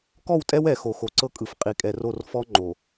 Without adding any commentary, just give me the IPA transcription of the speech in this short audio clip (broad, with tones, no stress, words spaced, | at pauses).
kɔ˦˨wtʼɛ˦w ɛ˨ xo˨xo˨ǀɤ˦kʼɯ˨f qʼi˨kʼɛ˨ro˦˨r fɔ˦ ŋ͡ǃo˨